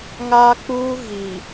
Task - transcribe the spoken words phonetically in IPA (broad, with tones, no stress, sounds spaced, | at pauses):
ŋ aː˦ k͡p uː˦ ɣ i˨